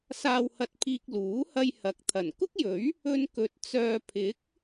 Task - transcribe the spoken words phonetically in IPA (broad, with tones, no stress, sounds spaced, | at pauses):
s aː˨ w h ɐ˨ t̚ pʰ iː˨ k̚ l uː˨˥ h ɐ˧ j h ɐ˨ k̚ t̪ʰ ɐ˨˩ n k ʊ˥ k̚ j ɵ˨˥ ɥ | ɵ˧ n k ɵ˨˥ t̚ t͡s œː˨ pʰ ɪ˨˥ k̚